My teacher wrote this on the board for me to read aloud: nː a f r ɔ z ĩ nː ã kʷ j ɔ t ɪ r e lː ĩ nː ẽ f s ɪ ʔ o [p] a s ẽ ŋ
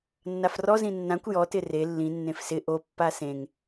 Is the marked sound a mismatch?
yes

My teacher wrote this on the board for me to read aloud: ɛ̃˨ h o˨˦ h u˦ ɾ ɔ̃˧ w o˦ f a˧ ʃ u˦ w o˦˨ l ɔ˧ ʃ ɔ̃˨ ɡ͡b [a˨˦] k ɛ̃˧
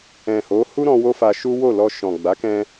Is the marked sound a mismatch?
no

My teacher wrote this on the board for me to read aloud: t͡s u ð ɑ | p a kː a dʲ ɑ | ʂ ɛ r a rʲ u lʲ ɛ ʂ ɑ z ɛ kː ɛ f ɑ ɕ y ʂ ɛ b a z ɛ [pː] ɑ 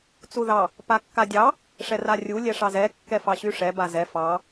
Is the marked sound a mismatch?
yes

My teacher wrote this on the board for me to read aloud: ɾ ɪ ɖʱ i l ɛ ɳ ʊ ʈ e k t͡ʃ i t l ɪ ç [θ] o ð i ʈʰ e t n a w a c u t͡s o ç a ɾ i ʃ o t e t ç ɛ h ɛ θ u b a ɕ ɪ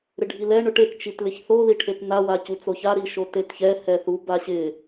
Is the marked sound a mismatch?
no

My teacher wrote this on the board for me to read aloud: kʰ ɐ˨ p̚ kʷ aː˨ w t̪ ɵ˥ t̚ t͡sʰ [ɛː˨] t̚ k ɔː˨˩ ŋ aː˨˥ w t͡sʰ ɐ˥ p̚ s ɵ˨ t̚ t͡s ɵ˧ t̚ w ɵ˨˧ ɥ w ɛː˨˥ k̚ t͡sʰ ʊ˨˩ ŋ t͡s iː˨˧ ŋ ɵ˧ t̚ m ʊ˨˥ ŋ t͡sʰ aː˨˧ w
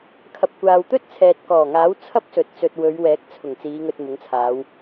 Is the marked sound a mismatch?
no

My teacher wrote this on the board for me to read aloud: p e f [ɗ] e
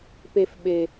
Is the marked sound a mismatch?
yes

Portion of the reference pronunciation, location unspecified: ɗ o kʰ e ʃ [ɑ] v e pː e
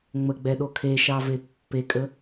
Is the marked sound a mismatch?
no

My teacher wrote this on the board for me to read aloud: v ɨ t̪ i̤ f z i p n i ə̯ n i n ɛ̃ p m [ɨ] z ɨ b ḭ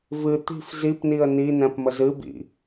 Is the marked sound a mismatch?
yes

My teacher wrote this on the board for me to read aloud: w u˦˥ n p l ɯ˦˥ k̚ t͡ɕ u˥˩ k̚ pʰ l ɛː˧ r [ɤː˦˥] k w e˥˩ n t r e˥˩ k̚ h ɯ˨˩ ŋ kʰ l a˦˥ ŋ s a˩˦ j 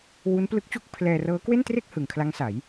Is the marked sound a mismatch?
no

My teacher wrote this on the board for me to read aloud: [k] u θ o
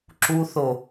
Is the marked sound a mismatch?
yes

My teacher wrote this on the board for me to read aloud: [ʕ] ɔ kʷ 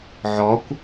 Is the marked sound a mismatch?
no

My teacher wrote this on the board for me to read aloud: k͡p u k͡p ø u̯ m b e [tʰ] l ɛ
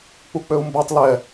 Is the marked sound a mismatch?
yes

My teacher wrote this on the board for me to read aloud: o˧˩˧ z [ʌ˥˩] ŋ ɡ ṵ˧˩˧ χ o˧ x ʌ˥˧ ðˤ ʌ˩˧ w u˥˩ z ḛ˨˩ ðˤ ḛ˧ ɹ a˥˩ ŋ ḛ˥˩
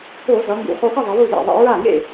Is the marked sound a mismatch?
yes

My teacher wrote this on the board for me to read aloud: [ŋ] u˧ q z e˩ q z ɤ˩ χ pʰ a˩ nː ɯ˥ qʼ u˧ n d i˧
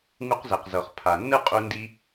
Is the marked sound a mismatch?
no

